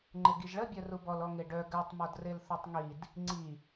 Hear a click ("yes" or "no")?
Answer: yes